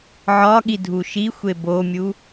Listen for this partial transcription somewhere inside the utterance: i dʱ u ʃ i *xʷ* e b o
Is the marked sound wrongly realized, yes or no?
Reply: no